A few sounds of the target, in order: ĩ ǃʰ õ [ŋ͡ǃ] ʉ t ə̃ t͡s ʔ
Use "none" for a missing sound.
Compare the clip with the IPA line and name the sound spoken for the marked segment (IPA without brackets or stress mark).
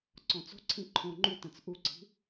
ŋ͡ǃ